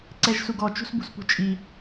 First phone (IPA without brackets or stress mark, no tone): ǀ